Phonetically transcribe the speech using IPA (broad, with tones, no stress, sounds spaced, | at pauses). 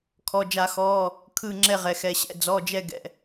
kʰ ɔ˩˧˩ d͡ʒ a˧˩˧ x ɔː˩˧˩ | kʰ ɯ˧˩ ŋ͡ǁ ɛ˧˩ ʁ ɛ˩ x ɛ˩ ɕ ɛ̰˧˩ d͡z ɔ˩˧˩ d͡ʒ ɛ˧˩ ɡ ɛ̰˩